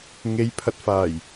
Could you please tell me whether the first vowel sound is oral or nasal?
oral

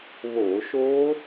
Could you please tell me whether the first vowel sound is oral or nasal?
oral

